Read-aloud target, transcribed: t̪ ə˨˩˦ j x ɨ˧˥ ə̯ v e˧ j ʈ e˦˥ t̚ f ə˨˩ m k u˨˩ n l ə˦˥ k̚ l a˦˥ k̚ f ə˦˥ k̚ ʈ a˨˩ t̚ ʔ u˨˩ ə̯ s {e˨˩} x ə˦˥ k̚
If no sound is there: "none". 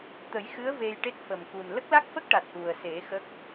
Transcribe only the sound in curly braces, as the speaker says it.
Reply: e˨˩˦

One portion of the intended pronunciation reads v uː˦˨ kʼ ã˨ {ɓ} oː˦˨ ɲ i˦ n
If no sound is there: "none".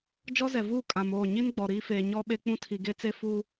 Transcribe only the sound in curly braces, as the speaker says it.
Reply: m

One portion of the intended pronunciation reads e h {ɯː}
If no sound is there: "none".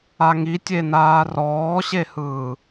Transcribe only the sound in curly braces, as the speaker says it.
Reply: ɯː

